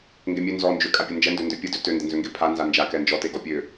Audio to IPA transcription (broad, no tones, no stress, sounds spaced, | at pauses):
ŋ ɡ e mʲ ø n z ɔ n d͡ʒ ø kʼ a pʲ ə n d͡ʒ ɛ n d ø n d ø pʲ ə d ø t ø n d ə n z ø ŋ ɡ e pʰ a n z a n d͡ʒ a k ɛ n d͡ʒ ɔ t e ɡ ɔ pʲ ø